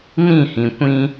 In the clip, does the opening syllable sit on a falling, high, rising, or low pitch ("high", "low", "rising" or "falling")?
falling